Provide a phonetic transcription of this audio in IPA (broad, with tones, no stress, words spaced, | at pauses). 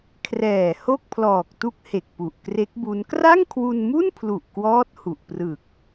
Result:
kʰrɛː˨˩ ho˥˩k̚pʰlɔː˨˩k̚tu˦˥k̚ he˨˩k̚ pu˨˩ʔkre˦˥k̚bu˦˥n kra˥˩ŋkʰwu˧nmu˥˩npʰlu˨˩ʔ kwɔː˦˥t̚hu˨˩ʔ prɯ˨˩k̚